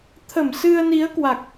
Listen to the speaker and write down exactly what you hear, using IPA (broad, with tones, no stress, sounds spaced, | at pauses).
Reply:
t̪ʰ ə˧˩ m s ɨ˧ ə̯ n i˨˦ ə̯ k w a˨˩ k̚